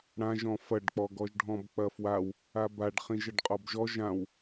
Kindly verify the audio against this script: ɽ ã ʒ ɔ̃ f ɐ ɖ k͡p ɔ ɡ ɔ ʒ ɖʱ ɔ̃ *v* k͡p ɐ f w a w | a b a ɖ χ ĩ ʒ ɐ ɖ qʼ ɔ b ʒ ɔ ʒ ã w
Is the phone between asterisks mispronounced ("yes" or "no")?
yes